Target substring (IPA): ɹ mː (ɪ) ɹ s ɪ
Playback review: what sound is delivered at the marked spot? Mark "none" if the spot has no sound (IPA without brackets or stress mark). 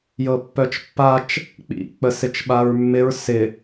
ɪ